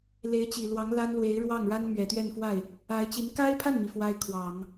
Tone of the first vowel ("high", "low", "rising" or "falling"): rising